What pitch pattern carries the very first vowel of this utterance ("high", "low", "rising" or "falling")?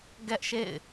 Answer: high